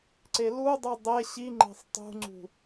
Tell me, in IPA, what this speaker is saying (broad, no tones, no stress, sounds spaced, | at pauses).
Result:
ǀ e l u dˤ u dˤ e ɕ i ŋ͡ǃ e̤ sˤ tˤ ṳ ŋ͡ǀ ṳ